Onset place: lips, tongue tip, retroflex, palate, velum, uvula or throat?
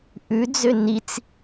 throat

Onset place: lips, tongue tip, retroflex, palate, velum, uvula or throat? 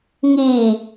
velum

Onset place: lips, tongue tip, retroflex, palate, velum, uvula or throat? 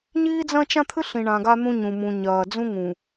palate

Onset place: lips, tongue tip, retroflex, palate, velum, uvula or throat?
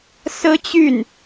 tongue tip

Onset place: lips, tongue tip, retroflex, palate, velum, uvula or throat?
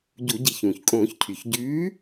palate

